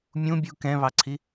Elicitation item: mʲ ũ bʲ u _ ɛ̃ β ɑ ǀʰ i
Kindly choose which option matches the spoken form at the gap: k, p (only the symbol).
k